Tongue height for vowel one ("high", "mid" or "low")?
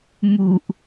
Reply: high